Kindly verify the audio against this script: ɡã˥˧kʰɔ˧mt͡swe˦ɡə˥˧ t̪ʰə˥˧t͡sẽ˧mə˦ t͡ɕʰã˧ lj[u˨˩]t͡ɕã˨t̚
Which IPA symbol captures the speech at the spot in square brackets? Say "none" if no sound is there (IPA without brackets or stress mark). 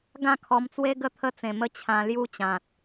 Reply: u˦